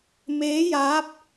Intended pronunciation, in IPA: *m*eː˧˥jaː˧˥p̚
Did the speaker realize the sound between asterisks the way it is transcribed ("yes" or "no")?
yes